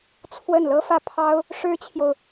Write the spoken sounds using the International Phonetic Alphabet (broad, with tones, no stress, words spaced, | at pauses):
t͡sʰwə˥˩n lɤ˥fä˥˩pʰɑ˥ʊ̯ | ʂɻ̩˥t͡ɕʰjo˨ʊ̯